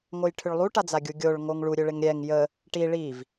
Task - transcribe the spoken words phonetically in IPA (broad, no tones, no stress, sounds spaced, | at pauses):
ŋ o j ʈʰ ʏ ɭ lˠ u ʈ a d͡z a ɡʲ u ɡʲ o ɭ ŋ o ŋ ɭ u ɾʲ ø ɭ ɪ ŋ ɾʲ ɛ ŋ j ə | ʈ i ɭ i v